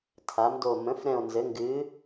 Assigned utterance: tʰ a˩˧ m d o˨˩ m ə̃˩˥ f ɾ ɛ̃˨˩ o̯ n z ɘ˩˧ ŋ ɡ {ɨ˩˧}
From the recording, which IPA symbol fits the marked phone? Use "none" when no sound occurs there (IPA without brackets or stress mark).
ɨ˩˧